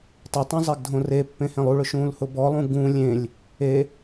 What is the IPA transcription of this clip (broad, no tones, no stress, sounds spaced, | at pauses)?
tˤ ɪ tˤ ũ zˤ e ɡ dʱ õ r e pː ẽ h ẽ lˠ u ɭ ʊ ʃ ũː l h ʊ b ɔ lˠ ũ ɡ ũː lʲ ẽ lʲ | e